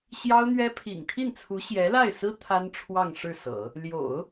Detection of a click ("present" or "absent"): absent